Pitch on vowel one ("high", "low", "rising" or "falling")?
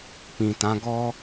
low